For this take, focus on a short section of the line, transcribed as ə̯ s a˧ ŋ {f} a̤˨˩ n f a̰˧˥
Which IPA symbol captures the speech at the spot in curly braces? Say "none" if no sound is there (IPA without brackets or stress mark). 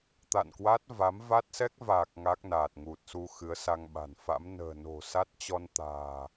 ɓ